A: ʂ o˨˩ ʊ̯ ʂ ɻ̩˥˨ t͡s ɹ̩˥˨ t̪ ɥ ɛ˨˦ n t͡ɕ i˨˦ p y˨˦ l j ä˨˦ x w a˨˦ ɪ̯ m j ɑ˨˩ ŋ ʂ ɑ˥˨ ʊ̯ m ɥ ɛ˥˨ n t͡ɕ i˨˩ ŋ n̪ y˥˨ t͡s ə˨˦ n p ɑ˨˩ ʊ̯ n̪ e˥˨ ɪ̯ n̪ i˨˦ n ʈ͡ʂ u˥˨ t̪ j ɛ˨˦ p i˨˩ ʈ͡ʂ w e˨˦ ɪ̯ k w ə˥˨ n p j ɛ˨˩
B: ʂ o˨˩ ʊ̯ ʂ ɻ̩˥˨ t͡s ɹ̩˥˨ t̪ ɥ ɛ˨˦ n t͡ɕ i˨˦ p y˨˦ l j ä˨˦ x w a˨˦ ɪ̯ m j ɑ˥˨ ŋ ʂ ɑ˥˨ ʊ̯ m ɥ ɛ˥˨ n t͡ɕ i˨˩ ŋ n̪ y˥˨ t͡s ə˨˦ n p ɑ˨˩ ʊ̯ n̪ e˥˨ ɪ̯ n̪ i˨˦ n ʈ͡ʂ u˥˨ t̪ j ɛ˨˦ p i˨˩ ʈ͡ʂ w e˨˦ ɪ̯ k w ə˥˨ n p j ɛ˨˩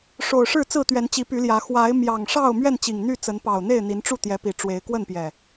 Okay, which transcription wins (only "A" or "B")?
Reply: A